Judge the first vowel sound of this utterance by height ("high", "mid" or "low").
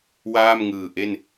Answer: low